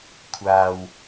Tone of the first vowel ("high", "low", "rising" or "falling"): low